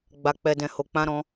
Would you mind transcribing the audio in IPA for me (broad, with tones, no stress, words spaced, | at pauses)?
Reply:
ɡ͡ba˧k͡pɛ˧dɛ̃˧ho˧ k͡pã˦ɾɔ̃˦